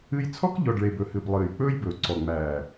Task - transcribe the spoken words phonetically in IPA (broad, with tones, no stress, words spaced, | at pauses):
ɨ˧jt͡sʰɔ˦kʎɔ˨ɖɭe˨b ɵ˨hɨ˨b lˠɨː˨jk͡pɵː˦jbɵː˨ ǀɔ˨ŋ͡mæː˨